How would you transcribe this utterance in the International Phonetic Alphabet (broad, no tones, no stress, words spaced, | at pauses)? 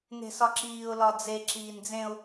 ne̤sɒǁiːʊ̯ lɒd͡ze ǁiːnd͡zẽʊ̯